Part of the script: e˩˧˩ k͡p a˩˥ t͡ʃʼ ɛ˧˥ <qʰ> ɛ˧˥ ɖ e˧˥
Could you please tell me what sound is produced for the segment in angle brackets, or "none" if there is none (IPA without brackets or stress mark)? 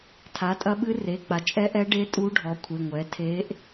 ʔ